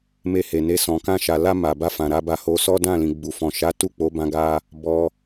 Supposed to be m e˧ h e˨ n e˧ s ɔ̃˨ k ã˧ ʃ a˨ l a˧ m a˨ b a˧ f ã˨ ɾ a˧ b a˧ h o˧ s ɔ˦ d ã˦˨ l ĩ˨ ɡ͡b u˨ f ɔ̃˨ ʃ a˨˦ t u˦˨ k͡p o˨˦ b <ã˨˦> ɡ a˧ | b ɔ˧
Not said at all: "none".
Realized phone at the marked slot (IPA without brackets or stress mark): ã˧